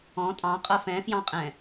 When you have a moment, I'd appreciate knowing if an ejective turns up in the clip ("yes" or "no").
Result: yes